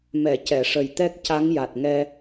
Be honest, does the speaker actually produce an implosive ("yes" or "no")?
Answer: no